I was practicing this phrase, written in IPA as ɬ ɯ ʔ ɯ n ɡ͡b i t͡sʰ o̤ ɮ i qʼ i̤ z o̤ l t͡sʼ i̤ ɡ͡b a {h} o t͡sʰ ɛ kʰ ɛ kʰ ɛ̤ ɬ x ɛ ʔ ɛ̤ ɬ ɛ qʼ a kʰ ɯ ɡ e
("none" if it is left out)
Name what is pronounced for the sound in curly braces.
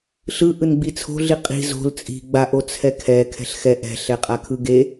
ʔ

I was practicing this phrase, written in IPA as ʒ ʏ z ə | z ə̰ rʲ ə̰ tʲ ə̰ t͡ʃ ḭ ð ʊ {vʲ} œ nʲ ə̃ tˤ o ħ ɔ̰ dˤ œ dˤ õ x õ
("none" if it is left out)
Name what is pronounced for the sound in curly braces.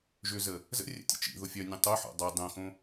fʲ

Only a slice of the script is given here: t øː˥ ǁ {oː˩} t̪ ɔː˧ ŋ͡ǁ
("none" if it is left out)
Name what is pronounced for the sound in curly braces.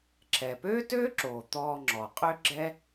oː˩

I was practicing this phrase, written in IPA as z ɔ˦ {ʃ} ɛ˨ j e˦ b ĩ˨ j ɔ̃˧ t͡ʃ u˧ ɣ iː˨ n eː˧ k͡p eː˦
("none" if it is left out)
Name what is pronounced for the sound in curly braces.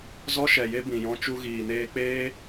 ʃ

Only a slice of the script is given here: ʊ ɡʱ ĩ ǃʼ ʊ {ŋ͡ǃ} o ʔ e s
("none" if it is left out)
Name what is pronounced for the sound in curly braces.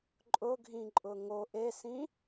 ŋ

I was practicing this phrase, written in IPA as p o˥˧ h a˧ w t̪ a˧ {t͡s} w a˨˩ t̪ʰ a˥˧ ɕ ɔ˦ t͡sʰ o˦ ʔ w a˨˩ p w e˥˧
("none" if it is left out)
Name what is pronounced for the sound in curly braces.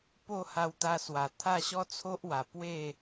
s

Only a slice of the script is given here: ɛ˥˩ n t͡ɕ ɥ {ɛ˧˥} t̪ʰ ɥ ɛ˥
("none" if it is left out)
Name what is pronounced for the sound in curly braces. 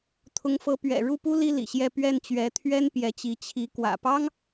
ɛ˧˥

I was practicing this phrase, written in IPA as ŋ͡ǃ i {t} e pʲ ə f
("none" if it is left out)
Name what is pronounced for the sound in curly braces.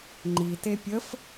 t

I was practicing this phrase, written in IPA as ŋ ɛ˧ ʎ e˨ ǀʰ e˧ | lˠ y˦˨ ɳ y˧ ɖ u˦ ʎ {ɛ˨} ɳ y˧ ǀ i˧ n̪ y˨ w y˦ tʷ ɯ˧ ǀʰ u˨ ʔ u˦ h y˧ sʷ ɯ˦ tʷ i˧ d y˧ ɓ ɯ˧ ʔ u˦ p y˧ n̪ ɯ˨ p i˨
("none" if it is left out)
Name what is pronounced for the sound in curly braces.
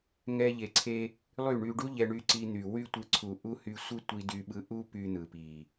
ɛ˧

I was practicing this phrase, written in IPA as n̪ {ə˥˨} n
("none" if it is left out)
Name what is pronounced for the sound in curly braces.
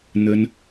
ə˦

